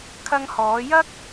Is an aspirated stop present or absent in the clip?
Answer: present